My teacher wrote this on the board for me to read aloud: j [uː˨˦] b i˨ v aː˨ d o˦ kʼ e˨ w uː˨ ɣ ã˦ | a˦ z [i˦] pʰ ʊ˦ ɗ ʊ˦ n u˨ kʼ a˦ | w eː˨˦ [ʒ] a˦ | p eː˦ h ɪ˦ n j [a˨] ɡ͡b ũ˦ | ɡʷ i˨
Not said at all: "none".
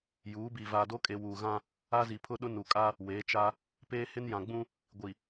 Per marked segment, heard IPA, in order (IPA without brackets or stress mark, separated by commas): uː˨˦, i˨, t͡ʃ, ã˨